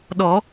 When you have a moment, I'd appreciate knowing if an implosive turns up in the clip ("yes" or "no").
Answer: yes